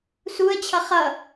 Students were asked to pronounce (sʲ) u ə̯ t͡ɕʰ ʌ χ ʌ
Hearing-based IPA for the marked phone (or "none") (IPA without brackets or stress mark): s